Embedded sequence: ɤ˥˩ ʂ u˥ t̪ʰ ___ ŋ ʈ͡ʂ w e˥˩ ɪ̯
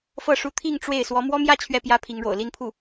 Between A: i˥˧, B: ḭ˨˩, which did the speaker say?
A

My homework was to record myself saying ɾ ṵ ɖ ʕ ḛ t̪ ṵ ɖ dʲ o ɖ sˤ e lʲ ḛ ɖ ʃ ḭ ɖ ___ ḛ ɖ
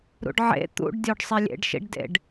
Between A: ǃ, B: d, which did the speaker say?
B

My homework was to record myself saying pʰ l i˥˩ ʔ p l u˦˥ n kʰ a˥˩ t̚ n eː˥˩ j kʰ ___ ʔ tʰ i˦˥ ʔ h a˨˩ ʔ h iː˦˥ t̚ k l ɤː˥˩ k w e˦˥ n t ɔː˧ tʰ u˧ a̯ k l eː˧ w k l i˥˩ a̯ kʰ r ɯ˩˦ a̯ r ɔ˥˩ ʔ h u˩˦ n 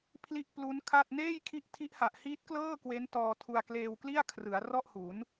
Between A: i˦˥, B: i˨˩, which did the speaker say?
A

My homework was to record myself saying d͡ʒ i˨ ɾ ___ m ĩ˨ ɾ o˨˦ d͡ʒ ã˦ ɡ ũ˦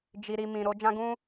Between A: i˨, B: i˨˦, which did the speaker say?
A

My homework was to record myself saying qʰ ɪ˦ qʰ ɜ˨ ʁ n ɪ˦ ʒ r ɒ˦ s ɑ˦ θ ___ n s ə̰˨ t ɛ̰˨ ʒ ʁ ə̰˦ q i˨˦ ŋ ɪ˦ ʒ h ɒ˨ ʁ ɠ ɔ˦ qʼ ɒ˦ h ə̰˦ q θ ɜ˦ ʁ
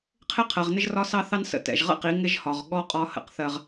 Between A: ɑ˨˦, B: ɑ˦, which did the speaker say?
B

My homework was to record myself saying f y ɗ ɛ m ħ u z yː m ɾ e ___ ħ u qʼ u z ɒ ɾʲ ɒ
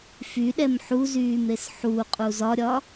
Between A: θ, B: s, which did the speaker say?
B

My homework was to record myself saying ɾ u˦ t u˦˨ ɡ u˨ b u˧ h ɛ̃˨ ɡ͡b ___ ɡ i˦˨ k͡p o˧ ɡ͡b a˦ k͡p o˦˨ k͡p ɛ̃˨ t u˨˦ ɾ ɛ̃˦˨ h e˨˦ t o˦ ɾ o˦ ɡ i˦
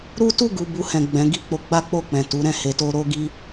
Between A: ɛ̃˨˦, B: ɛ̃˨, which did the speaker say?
A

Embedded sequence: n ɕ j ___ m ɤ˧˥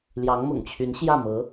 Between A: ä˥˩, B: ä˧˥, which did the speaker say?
A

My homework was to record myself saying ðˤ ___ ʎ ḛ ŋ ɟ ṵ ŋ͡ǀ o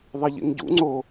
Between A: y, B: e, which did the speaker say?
B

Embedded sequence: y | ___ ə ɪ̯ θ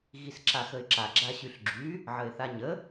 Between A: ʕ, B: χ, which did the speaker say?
A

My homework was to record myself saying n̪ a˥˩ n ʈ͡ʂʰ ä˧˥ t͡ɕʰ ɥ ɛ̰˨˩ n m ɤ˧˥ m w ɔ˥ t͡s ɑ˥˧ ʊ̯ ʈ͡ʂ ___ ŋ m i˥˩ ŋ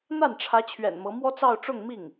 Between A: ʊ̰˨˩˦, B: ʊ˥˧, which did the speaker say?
B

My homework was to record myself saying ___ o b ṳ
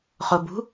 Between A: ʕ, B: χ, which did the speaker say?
B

